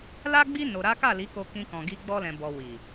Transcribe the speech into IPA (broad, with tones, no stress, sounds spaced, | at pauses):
l a˦ ɡ͡b i˦ n o˧ ɾ a˦ k a˦˨ l i˨˦ k o˧ k ĩ˧ k ɔ̃˨ ɡ i˧ ɡ͡b ɔ˧ l ɛ̃˨ b ɔ˨ w i˨